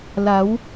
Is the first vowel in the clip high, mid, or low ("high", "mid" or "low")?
low